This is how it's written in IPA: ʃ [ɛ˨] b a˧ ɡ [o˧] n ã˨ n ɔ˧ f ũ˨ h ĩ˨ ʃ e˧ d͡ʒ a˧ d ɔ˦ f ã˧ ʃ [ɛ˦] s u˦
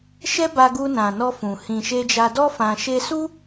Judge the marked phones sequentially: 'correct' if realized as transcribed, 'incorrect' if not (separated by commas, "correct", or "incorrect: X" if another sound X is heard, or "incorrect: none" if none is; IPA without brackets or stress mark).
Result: incorrect: ɛ˦, incorrect: u˧, incorrect: e˦